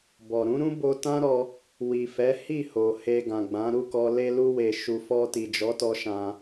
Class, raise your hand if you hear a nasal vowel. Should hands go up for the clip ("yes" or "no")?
yes